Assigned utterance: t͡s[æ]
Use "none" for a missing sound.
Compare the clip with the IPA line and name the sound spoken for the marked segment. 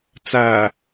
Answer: æ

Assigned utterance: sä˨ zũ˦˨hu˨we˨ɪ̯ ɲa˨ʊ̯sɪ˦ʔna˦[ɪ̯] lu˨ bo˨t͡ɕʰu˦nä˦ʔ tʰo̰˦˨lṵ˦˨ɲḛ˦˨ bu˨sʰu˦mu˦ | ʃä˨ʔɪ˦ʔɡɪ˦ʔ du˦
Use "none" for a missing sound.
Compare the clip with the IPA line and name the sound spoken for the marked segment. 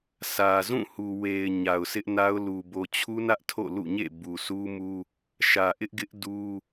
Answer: ʊ̯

